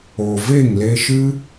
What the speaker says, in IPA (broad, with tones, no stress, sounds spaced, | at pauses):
o˨ v e˦˨ ŋ l e˧ ʃ ɨ˦